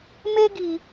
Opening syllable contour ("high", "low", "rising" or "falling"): high